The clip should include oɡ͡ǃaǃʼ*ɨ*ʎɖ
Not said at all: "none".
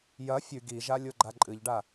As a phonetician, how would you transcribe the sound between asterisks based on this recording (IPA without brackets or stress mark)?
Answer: ɨ